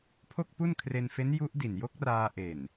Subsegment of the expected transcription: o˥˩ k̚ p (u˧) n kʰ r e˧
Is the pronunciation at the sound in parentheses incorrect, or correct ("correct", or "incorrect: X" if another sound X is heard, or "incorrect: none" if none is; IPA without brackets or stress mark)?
incorrect: u˥˩